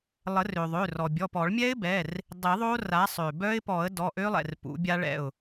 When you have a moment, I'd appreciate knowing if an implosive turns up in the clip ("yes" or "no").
no